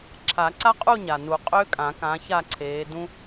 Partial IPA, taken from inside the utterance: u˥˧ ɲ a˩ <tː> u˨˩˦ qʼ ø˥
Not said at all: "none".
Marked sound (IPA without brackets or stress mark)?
n